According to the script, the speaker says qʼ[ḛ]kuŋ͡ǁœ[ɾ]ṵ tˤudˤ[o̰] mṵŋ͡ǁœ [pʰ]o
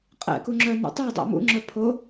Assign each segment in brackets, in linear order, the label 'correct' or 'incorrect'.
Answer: incorrect, incorrect, correct, correct

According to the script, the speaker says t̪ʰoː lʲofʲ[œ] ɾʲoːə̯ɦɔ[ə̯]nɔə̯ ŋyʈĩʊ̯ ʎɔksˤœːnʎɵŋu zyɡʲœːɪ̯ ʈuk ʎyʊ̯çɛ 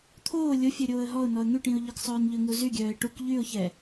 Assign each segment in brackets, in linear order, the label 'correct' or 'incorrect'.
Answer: correct, incorrect

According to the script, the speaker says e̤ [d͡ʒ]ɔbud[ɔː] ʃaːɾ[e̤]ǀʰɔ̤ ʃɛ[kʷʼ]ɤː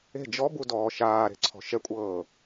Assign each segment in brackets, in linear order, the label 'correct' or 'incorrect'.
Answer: correct, correct, correct, correct

